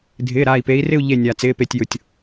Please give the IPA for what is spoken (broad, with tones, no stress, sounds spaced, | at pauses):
dʱ ɪː˩˧˩ ɾ aː˧˩ i̯ p e˨˦ i̯ r ɪ˥˧ u̯ ʎ e˧˩ nʲ aː˩ t͡s ɪː˩˧˩ p e˧˩ tʲ j ʊ˩ tʲ